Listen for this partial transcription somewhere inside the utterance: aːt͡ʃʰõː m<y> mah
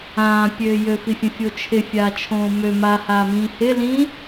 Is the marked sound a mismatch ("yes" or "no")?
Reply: yes